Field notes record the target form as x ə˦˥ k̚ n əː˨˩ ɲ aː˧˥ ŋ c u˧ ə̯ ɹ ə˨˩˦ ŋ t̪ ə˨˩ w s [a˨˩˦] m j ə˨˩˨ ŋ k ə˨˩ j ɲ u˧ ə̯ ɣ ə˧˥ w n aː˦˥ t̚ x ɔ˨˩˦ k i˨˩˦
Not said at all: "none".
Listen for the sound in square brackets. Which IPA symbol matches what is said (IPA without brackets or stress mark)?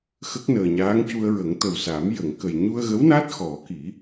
a˨˩˦